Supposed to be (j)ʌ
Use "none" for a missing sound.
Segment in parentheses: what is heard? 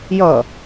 j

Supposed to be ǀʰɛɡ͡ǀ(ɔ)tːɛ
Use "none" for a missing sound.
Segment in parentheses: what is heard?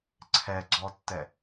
ɔ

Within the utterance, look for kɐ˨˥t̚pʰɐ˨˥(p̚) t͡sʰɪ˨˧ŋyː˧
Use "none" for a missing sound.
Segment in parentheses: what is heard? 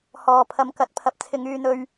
p̚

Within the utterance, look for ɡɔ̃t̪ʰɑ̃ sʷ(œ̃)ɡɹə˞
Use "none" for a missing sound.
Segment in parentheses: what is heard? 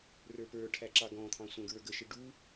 æ̃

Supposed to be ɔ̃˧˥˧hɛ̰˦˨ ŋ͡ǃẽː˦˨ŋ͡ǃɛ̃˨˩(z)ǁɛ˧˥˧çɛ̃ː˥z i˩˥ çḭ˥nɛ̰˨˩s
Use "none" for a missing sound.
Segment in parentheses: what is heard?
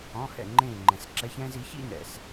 s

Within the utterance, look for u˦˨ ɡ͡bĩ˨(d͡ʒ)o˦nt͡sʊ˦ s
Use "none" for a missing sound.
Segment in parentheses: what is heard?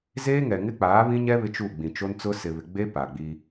t͡ʃ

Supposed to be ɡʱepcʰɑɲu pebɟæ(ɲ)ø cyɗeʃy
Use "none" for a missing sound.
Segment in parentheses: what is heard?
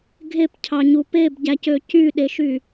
c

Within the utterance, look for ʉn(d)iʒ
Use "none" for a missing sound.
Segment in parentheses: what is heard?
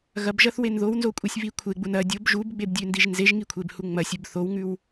d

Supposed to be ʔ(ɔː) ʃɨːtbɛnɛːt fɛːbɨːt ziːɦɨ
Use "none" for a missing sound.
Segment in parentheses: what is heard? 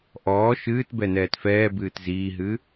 ɔː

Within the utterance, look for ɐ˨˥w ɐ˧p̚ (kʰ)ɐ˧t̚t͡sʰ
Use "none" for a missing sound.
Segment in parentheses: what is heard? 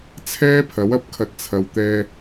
kʰ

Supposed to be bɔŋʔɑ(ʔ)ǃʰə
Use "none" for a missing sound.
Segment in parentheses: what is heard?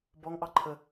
none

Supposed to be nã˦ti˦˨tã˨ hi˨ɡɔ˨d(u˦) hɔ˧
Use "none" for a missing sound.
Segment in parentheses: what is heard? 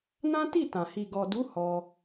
u˨˦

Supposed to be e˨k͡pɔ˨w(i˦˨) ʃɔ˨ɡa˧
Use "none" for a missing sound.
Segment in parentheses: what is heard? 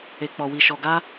i˨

